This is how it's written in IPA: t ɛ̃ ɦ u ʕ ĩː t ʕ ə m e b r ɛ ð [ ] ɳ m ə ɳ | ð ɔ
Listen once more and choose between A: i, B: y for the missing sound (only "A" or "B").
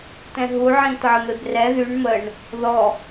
B